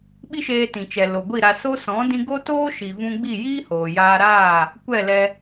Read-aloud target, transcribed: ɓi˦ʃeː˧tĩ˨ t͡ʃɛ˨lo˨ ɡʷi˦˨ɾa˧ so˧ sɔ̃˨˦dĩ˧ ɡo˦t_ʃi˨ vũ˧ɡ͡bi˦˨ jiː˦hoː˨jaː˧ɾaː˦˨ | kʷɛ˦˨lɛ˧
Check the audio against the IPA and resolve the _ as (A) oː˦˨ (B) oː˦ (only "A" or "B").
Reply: B